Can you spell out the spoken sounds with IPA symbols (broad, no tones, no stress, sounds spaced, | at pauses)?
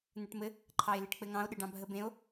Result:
n̪ ɘ ʈ m ɘ | ǃʰ ɑ e̯ l e ʈ k͡p ɘ ŋ ɑ̃ o̯ ɗ ɘ ɖ ɑ̃ bʱ ə b ẽ o̯